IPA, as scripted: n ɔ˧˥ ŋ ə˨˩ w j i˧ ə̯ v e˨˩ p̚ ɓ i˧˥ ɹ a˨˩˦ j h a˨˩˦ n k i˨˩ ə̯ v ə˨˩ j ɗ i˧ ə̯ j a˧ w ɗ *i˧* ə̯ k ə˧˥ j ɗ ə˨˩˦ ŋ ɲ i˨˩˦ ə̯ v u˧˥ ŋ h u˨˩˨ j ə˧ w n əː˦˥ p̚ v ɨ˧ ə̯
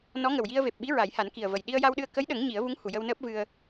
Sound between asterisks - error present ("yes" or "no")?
yes